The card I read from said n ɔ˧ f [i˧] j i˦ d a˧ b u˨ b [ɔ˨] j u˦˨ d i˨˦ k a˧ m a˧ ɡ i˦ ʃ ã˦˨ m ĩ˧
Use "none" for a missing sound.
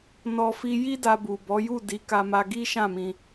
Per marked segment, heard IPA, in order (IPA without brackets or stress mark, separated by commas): i˧, ɔ˨˦